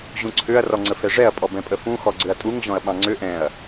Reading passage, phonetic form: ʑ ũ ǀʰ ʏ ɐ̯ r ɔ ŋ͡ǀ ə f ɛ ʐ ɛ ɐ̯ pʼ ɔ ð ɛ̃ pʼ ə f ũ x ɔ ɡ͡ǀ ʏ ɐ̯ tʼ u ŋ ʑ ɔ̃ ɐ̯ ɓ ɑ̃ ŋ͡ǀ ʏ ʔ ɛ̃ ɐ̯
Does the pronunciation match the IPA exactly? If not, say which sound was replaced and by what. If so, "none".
ð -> b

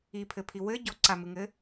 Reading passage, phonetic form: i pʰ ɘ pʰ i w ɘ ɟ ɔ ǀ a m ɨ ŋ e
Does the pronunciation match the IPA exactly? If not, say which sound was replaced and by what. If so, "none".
e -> ɘ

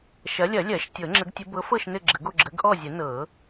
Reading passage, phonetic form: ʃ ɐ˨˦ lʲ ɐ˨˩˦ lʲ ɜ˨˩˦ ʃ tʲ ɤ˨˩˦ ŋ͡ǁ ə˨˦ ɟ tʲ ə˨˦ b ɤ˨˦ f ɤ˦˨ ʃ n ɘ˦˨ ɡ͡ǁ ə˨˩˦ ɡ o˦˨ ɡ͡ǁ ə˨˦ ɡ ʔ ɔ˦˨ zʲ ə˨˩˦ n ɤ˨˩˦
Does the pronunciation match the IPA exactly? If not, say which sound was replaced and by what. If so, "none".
ɟ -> ɡ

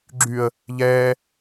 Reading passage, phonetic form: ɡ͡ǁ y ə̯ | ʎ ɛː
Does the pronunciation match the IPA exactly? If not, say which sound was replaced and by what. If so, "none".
none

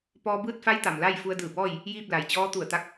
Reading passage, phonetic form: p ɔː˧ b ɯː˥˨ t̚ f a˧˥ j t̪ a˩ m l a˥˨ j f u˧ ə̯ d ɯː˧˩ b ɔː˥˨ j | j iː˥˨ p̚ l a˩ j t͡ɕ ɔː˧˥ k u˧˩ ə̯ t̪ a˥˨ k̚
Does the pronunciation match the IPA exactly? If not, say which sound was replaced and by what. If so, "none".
k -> t̪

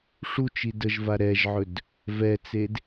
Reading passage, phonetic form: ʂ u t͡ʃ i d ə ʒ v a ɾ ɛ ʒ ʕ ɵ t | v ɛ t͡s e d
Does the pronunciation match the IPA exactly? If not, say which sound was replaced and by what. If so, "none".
t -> d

